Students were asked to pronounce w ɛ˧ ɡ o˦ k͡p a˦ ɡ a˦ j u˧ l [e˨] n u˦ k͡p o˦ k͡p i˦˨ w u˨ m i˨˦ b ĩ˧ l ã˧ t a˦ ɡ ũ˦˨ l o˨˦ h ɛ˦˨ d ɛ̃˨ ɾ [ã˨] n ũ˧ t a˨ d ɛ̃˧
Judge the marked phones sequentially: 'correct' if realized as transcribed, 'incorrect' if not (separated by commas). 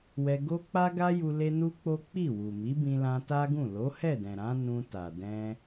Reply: incorrect, incorrect